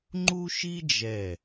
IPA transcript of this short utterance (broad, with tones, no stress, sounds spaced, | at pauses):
ŋ͡ǃ u˥ ʃ i˥ d͡ʒ ɛ˧˩